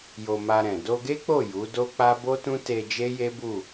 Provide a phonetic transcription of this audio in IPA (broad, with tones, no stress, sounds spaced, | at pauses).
j o˧ m a˧ ɾ ɛ̃˨ d o˧ ɡ e˦ k͡p o˦˨ j u˨˦ d o˦ k͡p a˦ b o˦ t ũ˦ t e˧ d͡ʒ e˦ j e˦ b u˦˨